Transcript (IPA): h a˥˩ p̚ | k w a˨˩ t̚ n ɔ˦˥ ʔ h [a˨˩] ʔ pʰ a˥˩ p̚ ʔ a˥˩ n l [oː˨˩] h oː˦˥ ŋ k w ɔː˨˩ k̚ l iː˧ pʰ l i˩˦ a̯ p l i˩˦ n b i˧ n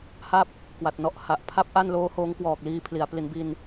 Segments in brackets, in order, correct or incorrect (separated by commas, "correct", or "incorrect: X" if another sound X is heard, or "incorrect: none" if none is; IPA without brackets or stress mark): correct, incorrect: oː˦˥